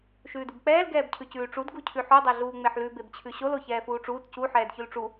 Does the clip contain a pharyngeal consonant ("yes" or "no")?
yes